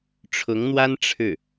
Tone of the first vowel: rising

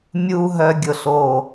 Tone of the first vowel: high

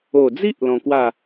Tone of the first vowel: low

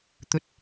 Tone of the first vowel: rising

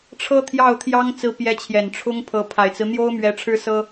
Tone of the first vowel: high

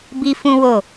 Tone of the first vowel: high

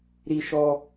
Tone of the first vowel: high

